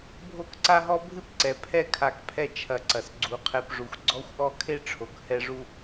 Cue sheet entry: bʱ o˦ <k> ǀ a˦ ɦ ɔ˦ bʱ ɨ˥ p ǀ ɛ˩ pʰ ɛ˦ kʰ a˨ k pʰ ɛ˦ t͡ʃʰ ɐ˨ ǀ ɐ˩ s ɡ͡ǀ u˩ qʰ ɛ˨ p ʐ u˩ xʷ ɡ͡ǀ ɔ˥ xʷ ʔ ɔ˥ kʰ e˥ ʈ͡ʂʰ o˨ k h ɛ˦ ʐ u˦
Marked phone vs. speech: correct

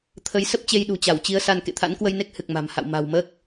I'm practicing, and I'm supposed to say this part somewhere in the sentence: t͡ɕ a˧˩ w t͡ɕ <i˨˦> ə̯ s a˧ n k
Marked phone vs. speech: correct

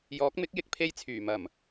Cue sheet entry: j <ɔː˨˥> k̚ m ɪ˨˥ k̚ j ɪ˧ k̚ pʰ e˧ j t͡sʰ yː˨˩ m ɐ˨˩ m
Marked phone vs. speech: correct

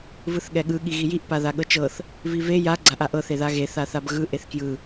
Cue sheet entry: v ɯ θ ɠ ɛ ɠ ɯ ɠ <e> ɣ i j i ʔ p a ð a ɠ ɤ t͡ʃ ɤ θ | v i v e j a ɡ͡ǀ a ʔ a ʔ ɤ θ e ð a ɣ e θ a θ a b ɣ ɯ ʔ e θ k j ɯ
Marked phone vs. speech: incorrect: i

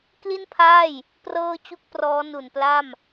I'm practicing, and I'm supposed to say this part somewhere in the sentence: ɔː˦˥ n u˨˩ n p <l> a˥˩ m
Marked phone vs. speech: correct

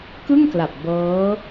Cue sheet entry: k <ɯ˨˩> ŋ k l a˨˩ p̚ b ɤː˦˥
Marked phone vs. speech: incorrect: ɯ˥˩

